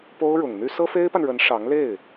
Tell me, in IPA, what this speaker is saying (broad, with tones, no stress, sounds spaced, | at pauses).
p o˥ ʊ̯ ɻ ʊ˨˩ ŋ n̪ y˥ s ɤ˥ f e˥ ɪ̯ p a˨ n ɻ ə˧˥ n ʂ ɑ˧˥ ŋ l e˥˩ ɪ̯